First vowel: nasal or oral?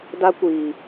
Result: oral